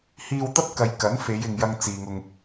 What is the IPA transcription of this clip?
h iː˧ w t̪ ɐ˥ p̚ k ɐ˨ j k ɐ˨˥ n f e˨˧ j ɪ˨ ŋ j ɐ˧ ŋ t͡s iː˨ ŋ ʊ˧ ŋ

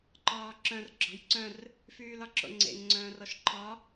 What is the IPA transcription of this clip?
ǃ ɒː ǁ œ̃ r ɡ͡ǁ ɔ̤ j ǀ œ̃ r | f yː l ɒ ǁ o̰ ŋ͡ǀ ḛ ŋ ŋ͡ǀ œ̃ː r ɔ ʃ ǃʰ ɒ

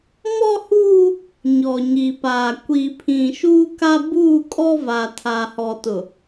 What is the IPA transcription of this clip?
m ɔ˦ h uː˦ | ɲ ɔ˨ ɲ i˨ p aː˨ kʷ i˨ pʰ ĩ˨ ʃ uː˦ k a˦ b uː˦˨ kʼ ɔ˦ v a˨ tʰ aː˨ h ɔ˨ t ʊ˨

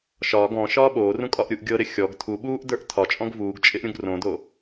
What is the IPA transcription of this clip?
ʃ ɒː ɡ ɔ̃ ʃ ɒː ɓ oː r ũ kʼ ɒ ʔ ɾʲ u ʔ ɡʲ ɤ ɾ ɪ xʲ ɔ ɡ tʰ u ɓ uː ʔ d ə˞ ʔ tʰ ɒ t͡ʃʼ ɔ̃ ɡ v uː ɡ t͡ʃʼ ɪ ʔ ɾʲ ũ ɡ r õ d o

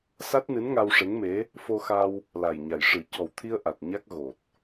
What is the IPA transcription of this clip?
s a˦˥ t̚ n ɨ˧˥ n ŋ a˧ w ʂ e˧˥ ŋ m e˧˥ | f o˧ x a˧ w | l a˨˩ j ɲ a˨˩ j ʂ ɨ˨˩˦ c ɔ˨˩ w t̪ʰ i˧ ə̯ ʔ a˨˩ t̚ ɲ a˦˥ k̚ ɣ o˨˩ t̚

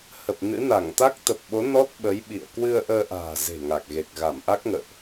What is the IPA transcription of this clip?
h ə˨˩ p̚ n ɨ̰˧˥ n a˧˩ ŋ t̪ a˦˥ k̚ t̪ ə˨˩ p̚ ɓ o˨˦ n ɔ˦˥ t̚ ɓ ə˨˦ j ɓ ḭ˧˨ ə̯ k w ɨ˧ ə̯ ʔ əː˧ ʔ a̤ː˨˩ z e̤˨˩ ŋ a˨˩ k̚ ɣ e˨˩ k̚ ɣ a˧˩ m ʔ a˦˥ k̚ ŋ ə̰ː˧˨ ʔ

